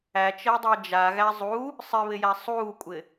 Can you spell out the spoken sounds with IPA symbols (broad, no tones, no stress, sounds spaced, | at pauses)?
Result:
æ t͡ʃ əː dˤ əː d͡ʒ a ɣ æ zˤ u | sˤ ɪ β ɪ j æ sˤ uː kʷʼ ɪ